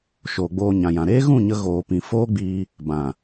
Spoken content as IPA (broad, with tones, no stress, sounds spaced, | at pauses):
ʃ oː˨ ɡ͡b oː˧ ɲ ã˨ j ã˨ ɾ eː˦ ɣ ũ˦˨ ɲ ə˧ ɣ oː˧ p ĩ˨ f oː˦ ɡ͡b iː˧ | b ã˨